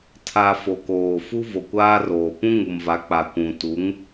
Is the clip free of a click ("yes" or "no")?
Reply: yes